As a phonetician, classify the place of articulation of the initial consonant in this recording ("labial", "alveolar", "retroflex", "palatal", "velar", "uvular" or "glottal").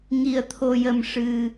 velar